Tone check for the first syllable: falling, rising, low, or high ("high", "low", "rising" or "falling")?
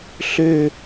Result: falling